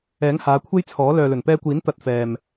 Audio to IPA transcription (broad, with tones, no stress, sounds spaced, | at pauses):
ɛː˨˥ ŋ h aː˨˧ kʷʰ e˥ j t͡sʰ ɔː˨˥ l œː˨ l ɵ˨˩ n p ɛː˧ kʷ iː˨˥ n t̪ ɐ˧ t̚ f ɛː˨ m